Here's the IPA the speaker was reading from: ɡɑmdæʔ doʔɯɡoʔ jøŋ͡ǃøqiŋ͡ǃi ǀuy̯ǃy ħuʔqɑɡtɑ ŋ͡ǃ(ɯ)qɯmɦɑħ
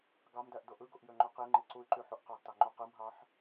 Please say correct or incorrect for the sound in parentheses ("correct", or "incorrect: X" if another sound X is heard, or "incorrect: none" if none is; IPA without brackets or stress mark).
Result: incorrect: u